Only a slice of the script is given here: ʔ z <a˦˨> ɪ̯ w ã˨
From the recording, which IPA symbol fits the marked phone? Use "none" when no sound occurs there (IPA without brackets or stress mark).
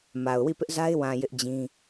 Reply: a˦